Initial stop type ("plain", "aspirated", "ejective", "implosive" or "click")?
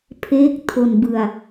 aspirated